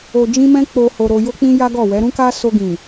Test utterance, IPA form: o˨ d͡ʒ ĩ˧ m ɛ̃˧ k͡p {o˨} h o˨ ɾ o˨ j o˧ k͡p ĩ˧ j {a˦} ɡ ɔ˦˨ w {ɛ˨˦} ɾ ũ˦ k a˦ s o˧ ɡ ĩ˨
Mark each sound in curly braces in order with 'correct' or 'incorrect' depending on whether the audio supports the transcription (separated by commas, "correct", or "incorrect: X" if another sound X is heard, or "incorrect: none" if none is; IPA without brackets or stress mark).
correct, correct, correct